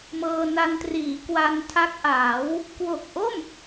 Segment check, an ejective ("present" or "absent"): absent